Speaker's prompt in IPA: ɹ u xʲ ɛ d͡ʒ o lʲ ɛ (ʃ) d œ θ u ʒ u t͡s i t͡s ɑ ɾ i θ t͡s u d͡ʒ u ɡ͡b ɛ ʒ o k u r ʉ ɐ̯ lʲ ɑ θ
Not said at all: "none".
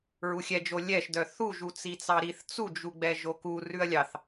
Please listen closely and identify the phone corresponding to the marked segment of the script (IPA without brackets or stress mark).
ʃ